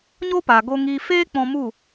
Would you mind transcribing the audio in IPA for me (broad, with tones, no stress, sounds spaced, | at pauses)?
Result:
ɲ o˦ p a˨ ɡ o˧ ŋ iː˧ f eː˦ k͡p ɔ̃˧ m u˦˨